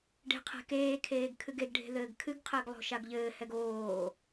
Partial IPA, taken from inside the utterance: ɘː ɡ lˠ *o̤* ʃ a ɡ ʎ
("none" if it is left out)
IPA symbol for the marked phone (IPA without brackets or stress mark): o̤